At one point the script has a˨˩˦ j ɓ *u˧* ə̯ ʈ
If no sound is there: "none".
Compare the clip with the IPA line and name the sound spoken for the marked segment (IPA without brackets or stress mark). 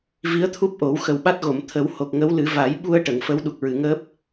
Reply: u˧